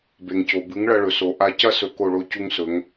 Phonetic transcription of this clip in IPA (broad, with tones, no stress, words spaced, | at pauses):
be˩ŋco˩ bɨ˩˥ŋɭɐ˧ɭɵ˩so˩ ʔa˧cɐ˥ sɵ˧ko˥˩ɭo˥ cu˥ŋsɵ˩˥ŋ